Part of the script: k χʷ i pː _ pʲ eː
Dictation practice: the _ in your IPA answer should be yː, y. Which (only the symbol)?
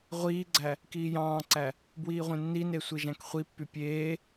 y